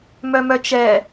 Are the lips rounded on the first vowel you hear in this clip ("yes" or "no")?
yes